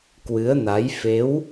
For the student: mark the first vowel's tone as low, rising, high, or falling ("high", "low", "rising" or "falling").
rising